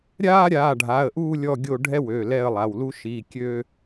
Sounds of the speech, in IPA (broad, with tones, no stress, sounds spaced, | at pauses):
ɾʲ aː˦ ɾʲ aː˩˧˩ ɖʱ a˩˧˩ ə̯ ʔ uː˦˨ lʲ ɔ˦˨ ɡʲ o˦˨ ɖʱ ɛ˦ w ø˩˧˩ l ɛ˦˨ ə̯ lˠ a˩˧˩ w l u˦ ʃ i˩˧˩ kʲ ø˦